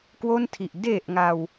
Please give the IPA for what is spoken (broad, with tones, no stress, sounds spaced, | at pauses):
k w o˥˩ n tʰ i˨˩ ʔ d e˨˩ ʔ ŋ a˧ w